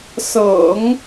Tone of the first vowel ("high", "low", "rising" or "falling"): low